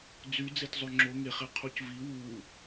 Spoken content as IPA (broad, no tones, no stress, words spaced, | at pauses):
d͡zy d͡zetzˤøŋ͡ǁo ŋeχe qʰucvi wu